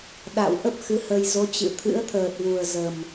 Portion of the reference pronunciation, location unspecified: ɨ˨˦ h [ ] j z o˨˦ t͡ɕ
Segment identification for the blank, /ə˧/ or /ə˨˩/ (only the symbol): ə˧